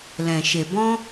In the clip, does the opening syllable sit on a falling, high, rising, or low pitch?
low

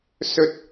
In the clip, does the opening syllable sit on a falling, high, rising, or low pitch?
high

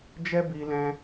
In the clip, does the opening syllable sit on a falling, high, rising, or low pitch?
high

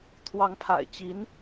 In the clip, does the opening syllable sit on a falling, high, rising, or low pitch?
rising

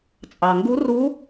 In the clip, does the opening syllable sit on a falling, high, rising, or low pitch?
low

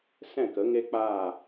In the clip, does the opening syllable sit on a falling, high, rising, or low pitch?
falling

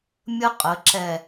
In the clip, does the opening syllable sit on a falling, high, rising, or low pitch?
high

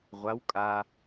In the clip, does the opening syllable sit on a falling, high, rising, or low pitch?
rising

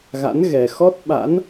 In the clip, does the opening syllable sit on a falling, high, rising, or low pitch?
rising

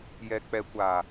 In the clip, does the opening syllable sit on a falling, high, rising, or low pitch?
low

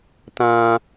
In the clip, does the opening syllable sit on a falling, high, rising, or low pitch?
high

